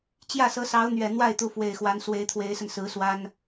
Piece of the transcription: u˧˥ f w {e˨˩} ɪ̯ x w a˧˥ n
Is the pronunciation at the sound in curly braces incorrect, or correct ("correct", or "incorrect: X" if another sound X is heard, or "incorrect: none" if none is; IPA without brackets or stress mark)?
correct